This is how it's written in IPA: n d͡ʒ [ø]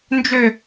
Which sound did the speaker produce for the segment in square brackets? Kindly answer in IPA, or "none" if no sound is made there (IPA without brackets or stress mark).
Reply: ø